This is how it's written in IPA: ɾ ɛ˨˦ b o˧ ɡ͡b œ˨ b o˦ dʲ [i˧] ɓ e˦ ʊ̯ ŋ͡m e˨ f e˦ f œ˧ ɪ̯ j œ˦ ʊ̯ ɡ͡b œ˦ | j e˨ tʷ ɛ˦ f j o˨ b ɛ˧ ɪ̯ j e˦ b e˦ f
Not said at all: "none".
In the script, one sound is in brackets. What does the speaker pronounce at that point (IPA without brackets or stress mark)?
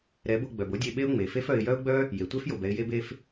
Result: e˧